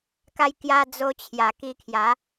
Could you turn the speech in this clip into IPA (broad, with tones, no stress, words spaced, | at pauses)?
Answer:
ka˧jkja˧ d͡zo˧t͡ɕʰja˨˩ki˧kʰja˨˦